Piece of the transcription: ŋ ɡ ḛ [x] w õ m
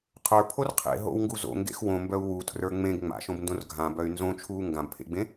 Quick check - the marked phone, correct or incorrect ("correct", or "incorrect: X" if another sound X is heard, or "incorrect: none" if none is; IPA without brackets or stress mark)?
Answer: correct